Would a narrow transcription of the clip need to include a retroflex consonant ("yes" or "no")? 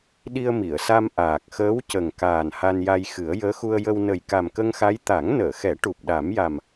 yes